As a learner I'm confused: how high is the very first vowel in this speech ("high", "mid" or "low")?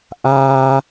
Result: low